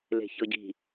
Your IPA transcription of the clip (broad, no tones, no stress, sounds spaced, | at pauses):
l e̤ ç ɤ ɟ i̤